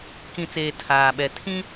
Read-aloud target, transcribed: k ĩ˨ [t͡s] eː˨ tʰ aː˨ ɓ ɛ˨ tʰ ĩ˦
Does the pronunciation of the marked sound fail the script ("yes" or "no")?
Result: no